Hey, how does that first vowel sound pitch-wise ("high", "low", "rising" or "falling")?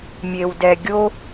low